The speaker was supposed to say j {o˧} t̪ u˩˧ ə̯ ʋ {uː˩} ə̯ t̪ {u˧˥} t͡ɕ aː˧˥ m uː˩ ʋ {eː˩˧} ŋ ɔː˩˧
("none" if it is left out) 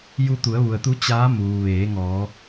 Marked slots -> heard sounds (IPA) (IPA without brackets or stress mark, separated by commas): u˧, u˩, u˧˥, eː˩˧